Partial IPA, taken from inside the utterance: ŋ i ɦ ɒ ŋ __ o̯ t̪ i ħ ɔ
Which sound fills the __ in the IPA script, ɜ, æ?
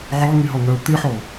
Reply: ɜ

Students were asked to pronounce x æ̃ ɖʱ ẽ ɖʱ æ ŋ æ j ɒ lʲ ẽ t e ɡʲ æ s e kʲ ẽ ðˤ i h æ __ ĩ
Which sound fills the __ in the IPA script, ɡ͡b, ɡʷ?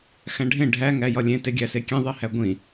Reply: ɡʷ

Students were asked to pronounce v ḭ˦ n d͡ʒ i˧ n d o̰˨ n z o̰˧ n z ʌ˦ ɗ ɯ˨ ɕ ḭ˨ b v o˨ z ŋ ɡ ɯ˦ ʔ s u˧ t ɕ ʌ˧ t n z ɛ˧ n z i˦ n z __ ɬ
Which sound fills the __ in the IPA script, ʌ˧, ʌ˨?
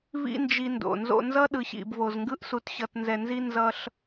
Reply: ʌ˧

